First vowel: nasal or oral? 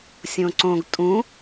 nasal